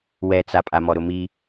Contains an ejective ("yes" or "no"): yes